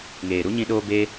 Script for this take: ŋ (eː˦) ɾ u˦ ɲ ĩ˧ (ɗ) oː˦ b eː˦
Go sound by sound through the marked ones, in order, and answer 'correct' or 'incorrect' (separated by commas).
incorrect, correct